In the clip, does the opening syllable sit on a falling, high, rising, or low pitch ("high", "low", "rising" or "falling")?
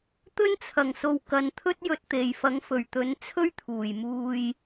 high